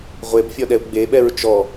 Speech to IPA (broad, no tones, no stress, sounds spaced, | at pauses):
ʁʷ e b fʲ ɔ ɗ ɛ u̯ ɡ͡b e ɓ ɛ ɹ t͡ʃ ɔ